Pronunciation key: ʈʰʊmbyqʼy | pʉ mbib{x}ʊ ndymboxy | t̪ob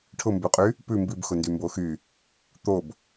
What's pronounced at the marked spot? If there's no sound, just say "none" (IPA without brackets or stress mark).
x